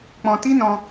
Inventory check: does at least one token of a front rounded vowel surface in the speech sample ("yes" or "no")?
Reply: no